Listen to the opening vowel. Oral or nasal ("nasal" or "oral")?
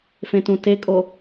nasal